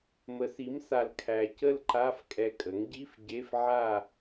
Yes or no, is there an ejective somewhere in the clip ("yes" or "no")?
yes